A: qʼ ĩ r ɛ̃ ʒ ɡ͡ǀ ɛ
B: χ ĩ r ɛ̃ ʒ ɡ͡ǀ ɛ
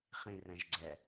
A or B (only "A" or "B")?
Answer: B